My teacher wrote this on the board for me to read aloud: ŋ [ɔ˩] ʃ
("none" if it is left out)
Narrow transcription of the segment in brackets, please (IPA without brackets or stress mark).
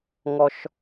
ɔ˩